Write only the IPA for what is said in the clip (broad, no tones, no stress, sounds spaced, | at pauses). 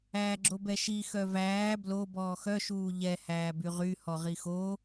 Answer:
æː ɡ͡ǁ o b ɛ ʃ i x œ v æː b l o b ɔː x œ ʃ uː ʎ ɛ h æː b y ʁ y h ɔ ʁ i x o